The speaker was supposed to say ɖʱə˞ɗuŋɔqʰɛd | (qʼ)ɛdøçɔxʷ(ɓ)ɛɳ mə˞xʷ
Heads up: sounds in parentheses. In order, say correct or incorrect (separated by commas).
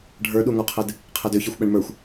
incorrect, correct